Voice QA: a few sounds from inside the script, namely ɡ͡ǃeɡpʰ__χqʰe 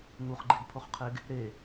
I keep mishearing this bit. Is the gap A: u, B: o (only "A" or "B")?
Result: B